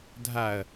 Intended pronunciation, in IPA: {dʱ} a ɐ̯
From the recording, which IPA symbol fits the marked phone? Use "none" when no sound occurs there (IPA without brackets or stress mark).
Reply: dʱ